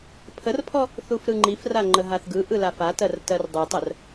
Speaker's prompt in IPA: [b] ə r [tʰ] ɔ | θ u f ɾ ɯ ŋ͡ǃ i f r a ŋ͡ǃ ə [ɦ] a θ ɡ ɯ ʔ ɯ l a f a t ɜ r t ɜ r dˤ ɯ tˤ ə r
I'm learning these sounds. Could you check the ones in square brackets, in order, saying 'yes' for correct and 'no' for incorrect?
no, no, yes

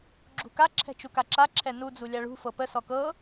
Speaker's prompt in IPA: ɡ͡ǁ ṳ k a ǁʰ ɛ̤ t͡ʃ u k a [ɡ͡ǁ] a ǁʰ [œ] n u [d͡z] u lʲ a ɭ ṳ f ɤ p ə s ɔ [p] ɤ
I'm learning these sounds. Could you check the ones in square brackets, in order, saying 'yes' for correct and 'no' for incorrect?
no, no, yes, no

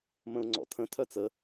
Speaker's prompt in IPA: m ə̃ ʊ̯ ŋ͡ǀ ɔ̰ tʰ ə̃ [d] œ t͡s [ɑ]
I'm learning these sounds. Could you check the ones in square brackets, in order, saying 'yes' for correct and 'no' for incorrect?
no, no

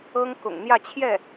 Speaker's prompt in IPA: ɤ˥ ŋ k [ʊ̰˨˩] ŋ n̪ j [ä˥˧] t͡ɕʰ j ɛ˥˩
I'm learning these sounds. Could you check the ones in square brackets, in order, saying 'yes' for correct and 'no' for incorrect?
yes, yes

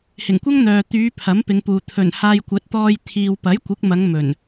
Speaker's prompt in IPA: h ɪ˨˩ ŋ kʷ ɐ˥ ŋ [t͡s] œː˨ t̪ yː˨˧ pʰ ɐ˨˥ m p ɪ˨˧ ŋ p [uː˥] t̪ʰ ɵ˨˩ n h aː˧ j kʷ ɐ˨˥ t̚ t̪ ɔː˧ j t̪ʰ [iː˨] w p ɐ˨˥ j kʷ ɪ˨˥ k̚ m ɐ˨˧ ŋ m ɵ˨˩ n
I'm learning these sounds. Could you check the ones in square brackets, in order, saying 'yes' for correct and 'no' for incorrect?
no, no, yes

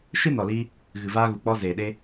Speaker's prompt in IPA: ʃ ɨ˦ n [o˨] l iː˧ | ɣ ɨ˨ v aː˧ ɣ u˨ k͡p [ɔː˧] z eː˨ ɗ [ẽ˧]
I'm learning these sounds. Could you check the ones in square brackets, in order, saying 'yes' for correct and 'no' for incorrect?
no, no, no

